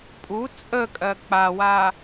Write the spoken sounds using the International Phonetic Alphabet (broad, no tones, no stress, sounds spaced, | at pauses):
pʼ u t͡sʼ ə kʼ ɜ k͡p a w a